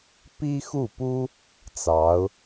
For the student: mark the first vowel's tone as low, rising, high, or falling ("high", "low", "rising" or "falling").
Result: high